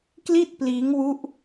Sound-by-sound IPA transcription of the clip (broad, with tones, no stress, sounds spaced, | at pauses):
k l i˥˩ t̚ p l iː˦˥ ŋ w u˦˥ ʔ